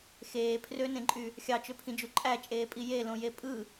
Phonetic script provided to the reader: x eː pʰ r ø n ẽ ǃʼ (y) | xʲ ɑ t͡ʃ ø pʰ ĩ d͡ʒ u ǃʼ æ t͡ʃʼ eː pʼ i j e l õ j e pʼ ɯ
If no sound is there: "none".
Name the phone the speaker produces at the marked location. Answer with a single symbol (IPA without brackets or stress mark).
y